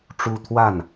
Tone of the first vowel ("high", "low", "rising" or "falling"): high